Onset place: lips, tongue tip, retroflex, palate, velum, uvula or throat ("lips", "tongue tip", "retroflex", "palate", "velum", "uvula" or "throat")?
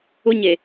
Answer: palate